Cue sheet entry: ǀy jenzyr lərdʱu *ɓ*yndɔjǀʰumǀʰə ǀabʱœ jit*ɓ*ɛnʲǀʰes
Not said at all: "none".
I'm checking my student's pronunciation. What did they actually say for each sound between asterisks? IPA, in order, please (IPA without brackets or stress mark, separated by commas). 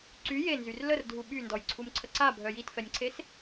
ɓ, f